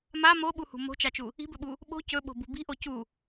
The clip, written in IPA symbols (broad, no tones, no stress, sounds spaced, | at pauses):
m a m o ɓ u h ṳ m o̤ t͡ʃ a t͡ʃ u | i̤ b ɵ ɓ u | ɓ o̤ c ɵ ɓ o̤ b ṳ b i̤ ʔ o c u